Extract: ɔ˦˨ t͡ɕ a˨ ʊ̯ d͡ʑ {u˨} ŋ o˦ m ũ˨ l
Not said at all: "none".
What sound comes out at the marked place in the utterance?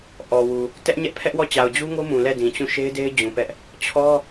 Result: u˦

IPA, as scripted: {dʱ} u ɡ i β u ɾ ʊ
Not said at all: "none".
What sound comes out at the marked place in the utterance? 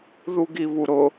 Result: ð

